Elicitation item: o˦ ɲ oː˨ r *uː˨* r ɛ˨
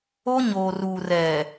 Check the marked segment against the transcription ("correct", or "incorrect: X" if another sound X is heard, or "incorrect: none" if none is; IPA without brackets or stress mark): correct